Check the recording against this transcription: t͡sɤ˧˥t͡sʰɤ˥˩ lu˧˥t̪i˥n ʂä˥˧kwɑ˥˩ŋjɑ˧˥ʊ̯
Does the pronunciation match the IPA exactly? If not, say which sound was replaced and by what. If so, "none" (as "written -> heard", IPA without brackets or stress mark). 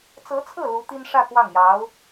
none